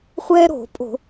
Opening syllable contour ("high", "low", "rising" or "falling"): high